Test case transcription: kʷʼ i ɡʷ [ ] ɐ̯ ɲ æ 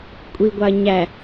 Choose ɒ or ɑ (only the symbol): ɑ